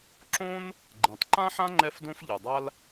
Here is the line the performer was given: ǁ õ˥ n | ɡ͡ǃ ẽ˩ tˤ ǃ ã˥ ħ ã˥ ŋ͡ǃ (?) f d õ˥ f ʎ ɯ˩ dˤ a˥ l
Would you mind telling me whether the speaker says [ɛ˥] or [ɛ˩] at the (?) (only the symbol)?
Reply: ɛ˥